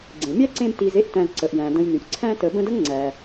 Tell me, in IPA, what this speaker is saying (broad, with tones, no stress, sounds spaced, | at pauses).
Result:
ɡ͡ǀ ẽ˩ mʲ æ˥ ǀ ẽ˦ b t i˨ z e˦ ʔ t æ̃˨ z ǀ ə˩ ʔ j æ̃˩ d ə̃˨ j n y˩ ʔ ǀʰ æ̃˦ t ə˨ b ə̃˦ d ə˥ ŋ ŋ͡ǀ æ˩